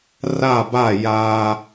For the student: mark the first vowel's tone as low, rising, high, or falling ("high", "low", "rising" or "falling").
falling